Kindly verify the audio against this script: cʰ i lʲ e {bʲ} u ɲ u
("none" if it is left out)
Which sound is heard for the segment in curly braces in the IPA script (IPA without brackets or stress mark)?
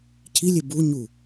b